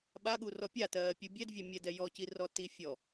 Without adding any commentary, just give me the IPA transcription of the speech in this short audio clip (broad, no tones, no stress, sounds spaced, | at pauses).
ɓ a ɠ u r ɔ pʲ a t ɜː pʲ u bʲ ɛ d vʲ ɛ mʲ ɛ d ɛ j ɔ c i r ɔ t i fʲ ɔ